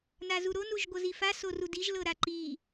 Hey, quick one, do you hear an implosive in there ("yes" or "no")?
no